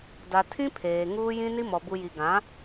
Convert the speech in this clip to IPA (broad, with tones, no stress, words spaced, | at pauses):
da˨tʰĩ˦ pʰeː˨ŋuː˦jĩ˦ ni˦mɔ˨ bu˨ji˨ɡã˨˦